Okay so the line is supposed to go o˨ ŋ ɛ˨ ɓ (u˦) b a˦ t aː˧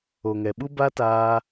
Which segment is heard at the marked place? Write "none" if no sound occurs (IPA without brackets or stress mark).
u˦